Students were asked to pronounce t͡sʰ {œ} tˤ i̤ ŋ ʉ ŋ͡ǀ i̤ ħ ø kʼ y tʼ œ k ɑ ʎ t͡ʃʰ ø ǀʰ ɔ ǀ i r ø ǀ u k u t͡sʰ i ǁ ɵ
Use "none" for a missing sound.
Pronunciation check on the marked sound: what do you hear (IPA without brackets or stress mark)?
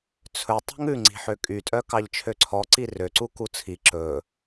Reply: ɵ